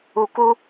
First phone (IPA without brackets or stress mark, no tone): u